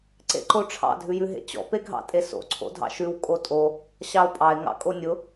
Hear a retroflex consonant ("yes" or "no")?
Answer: yes